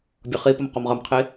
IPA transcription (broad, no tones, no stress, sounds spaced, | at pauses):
bʲ ʌ χ i p ʌ m q ɒ m ʁ ʌ m qʰ i